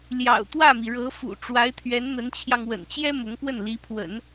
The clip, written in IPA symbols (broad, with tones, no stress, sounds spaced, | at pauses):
l j ɑ̰˨˩ ʊ̯ t̪ w ä˥˩ m i˩ ɻ ɤ˧˥ f ṵ˨˩ ʈ͡ʂ w a˧˥ ɪ̯ t̪ʰ ɥ ɛ˧˥ n n̪ ə˧˥ n t͡ɕʰ j ɑ˧ ŋ w ə̰˨˩ n t͡ɕ j ɛ˥ m ʊ˧˥ ŋ p w ə˥˩ n l i˧˥ pʰ w ə̰˨˩˦ n